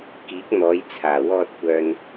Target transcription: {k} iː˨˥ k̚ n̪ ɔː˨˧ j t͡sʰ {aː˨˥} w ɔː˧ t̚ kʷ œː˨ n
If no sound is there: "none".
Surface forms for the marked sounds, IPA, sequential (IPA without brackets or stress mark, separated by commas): k, aː˨˩